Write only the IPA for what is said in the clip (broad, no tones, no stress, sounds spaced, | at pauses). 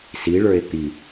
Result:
s i ɭ ə˞ e̯ t̪ i